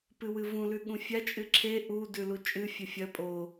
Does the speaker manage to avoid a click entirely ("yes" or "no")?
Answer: no